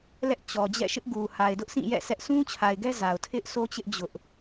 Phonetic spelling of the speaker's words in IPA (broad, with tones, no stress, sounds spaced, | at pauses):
l ɛ˦ ʔ t͡ɕ ɔ˨ d͡ʑ ɛ̰˦˨ ʃ ɪ˦ ʔ ɡ u˨ h a˨ ɪ̯ d ʊ˦ ʔ s ĩ˦˨ j ɛ̰˦˨ s ɛ˦ ʔ sʰ ũ˦ t͡ɕʰ a˨ ɪ̯ ɡ ɛ˦ z a˨ ʊ̯ tʰ ɪ˦ ʔ s o˦ t͡ɕ ɪ˦ ʔ d͡ʑ ʊ˦ ʔ